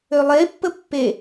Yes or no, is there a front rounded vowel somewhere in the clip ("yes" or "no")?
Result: yes